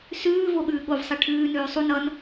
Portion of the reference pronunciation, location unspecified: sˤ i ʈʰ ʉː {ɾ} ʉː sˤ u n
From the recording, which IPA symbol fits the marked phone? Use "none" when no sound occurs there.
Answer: n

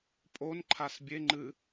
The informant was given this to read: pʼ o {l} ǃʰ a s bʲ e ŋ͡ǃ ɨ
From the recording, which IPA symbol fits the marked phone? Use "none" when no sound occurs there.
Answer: n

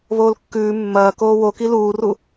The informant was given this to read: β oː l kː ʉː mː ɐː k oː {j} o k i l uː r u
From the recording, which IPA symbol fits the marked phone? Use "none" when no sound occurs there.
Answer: w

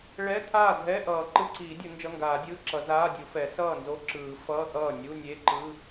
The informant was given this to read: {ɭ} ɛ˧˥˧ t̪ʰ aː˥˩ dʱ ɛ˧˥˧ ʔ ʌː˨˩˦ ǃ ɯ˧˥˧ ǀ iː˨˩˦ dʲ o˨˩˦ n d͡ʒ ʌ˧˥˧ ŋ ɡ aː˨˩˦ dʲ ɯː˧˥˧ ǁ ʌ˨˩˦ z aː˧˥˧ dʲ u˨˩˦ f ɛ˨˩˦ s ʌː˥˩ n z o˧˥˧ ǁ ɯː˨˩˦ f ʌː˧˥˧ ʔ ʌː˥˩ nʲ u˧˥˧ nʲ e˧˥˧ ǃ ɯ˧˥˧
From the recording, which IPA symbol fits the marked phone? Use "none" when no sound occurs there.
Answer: ɭ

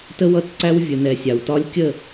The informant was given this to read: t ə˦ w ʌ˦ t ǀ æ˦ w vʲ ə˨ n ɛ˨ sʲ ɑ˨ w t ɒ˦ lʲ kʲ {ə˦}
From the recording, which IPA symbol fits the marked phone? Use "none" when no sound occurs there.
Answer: ə˦˨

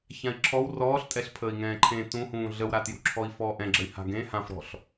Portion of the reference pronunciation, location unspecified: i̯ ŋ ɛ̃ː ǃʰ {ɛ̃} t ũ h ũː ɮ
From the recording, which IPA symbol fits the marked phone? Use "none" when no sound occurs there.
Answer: ẽ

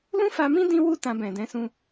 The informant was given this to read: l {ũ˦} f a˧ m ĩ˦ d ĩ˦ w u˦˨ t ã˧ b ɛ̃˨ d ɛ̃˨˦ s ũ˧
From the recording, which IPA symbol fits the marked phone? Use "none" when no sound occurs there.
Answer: ũ˦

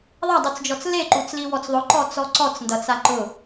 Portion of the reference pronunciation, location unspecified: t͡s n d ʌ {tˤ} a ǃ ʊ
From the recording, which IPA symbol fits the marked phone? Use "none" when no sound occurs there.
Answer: t͡s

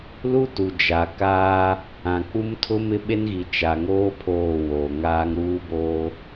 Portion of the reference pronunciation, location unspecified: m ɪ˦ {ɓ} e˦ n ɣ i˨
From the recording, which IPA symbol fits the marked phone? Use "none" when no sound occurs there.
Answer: ɓ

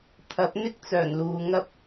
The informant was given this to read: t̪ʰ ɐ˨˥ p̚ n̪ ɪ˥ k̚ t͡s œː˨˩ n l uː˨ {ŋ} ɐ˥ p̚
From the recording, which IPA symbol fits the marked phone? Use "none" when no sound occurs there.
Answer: ŋ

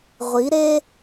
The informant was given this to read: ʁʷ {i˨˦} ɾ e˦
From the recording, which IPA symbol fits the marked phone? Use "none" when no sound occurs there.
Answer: i˨˦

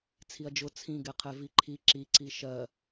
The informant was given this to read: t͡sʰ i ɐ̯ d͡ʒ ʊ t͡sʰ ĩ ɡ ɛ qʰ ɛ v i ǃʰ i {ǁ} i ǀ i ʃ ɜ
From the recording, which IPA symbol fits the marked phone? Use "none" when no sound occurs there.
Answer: ǁ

